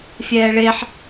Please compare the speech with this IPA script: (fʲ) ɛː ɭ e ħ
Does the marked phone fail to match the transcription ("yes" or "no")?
no